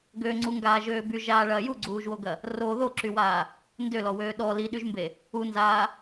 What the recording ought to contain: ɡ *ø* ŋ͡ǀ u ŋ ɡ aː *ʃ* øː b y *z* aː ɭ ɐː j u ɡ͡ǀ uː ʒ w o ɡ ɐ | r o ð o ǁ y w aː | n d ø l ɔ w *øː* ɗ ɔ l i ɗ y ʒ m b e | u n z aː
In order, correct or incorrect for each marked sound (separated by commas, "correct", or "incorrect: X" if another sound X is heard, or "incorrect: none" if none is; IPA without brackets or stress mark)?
correct, incorrect: ʒ, incorrect: ʒ, correct